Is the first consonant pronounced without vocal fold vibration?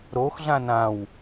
no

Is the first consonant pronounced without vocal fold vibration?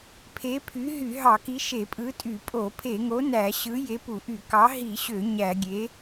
yes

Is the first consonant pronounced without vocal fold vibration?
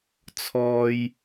yes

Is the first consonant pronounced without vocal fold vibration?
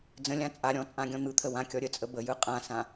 no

